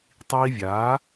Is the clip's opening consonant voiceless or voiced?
voiceless